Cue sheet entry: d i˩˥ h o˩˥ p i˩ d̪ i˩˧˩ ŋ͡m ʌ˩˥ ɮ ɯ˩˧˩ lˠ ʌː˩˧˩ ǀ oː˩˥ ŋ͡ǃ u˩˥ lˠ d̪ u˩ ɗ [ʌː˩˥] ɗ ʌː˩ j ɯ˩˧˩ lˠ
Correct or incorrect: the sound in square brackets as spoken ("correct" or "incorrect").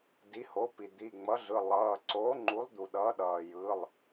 correct